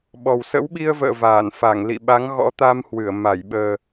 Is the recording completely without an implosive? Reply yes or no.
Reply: no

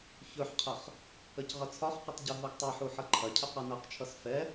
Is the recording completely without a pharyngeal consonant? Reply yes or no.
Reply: no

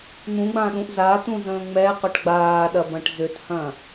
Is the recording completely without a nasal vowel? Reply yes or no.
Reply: no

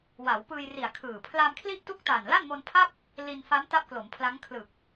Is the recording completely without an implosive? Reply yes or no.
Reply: yes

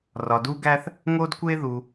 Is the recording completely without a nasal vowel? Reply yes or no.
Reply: yes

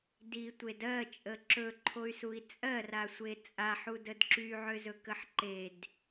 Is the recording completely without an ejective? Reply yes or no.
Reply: no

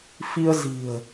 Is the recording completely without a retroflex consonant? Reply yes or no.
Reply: yes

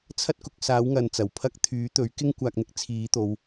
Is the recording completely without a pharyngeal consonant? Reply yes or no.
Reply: yes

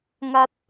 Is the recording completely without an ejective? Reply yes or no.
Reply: yes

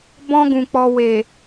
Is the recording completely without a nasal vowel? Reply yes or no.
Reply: no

